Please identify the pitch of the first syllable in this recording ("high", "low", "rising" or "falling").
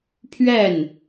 falling